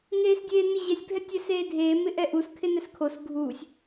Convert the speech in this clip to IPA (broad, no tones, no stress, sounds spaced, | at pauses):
ŋ eː s dʲ eː n ɪ ʑ ɛ sʲ bʱ ɛ tʲ ɛ s eː dʱ eː m ɪ ʔ ɛ ʔ u s kʰ ɪ n ɛ s kʰ o s ɡʱ uː sʲ